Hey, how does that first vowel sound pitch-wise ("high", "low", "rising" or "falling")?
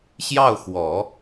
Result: falling